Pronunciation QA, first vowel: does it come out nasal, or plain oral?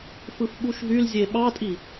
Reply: oral